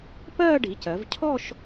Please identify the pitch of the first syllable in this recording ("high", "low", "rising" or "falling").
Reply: falling